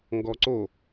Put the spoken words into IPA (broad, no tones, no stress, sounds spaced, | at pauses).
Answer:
ŋ ɡ ɔ ǀ o